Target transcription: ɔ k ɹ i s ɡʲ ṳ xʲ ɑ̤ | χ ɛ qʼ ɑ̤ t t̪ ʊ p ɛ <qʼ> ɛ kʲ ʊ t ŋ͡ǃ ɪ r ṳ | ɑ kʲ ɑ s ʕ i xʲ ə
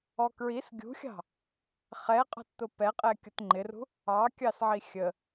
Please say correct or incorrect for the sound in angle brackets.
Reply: correct